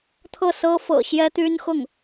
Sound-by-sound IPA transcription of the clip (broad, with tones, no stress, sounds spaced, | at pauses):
t̪ʰ ɤ˥˩ s ɤ˥ f ɤ̰˨˩ ɕ j ɛ˥ t̪ y˥ n x ʊ˥˩ ŋ